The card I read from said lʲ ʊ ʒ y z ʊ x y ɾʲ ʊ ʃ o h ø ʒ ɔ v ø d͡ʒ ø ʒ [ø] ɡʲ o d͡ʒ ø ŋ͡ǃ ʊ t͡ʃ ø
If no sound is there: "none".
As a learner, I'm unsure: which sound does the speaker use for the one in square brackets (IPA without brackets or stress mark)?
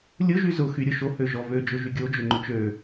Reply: y